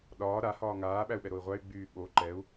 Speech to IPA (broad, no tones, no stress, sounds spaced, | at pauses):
ɗ ɒː ɾ a h ɒː ŋ aː ɓ æ u̯ ɓ ɛ ɾ o i̯ ʁʷ æ y̯ ɡ͡b yː ɓ o ǃ ɛ u̯